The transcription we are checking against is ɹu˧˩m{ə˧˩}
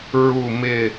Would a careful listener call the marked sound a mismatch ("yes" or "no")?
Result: yes